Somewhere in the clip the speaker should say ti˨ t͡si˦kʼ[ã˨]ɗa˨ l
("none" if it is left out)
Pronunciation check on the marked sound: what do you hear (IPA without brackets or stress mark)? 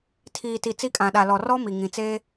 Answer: ã˨